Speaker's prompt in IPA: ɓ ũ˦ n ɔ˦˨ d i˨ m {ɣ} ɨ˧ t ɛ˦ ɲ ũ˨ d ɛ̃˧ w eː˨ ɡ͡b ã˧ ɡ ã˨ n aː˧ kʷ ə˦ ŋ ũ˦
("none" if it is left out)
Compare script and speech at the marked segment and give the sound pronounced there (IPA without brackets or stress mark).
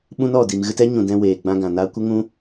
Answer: ɣ